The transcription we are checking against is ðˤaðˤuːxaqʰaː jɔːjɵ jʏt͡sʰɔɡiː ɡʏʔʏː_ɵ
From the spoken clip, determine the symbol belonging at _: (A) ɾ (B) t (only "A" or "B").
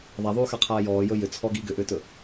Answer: B